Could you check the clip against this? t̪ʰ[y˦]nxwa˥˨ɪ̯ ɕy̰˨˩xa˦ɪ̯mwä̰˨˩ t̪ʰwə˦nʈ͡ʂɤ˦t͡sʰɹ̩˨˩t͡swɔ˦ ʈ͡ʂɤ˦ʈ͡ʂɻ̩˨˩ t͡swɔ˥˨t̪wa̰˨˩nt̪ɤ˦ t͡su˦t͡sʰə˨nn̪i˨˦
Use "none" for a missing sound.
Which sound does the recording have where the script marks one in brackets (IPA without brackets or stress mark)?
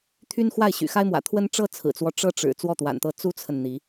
y˦